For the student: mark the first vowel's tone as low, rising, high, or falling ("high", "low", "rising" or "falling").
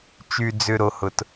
low